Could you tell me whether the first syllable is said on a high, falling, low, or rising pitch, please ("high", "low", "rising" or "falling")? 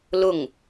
falling